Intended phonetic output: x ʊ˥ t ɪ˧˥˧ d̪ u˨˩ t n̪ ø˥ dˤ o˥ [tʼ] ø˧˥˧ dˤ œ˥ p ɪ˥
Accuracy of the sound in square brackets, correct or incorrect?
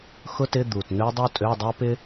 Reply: correct